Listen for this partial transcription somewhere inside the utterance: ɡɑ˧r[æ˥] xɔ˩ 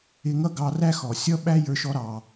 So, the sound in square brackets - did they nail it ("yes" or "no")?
yes